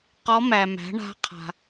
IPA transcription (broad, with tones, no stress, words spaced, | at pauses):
qɔ˧˥mæ˨mæ̤˩˥ɳa̤˧˥ qʰa̤˨